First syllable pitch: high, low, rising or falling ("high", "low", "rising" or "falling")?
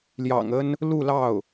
low